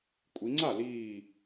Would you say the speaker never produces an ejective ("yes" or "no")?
no